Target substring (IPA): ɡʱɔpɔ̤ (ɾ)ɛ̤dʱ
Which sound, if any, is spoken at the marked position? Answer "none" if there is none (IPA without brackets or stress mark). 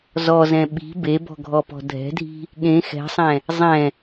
dʱ